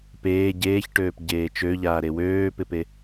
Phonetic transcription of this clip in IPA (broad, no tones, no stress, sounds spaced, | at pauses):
p eː ɟ eː ç ʈ øː p ɟ eː t͡ʃ ø ʎ aː ɾ e w øː p ɪ p e